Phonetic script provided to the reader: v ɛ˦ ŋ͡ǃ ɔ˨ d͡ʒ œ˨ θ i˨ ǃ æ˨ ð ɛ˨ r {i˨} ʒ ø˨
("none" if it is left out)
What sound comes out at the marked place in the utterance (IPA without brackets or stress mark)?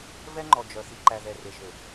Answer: e˨